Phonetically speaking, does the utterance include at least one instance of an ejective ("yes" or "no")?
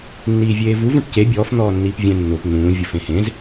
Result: no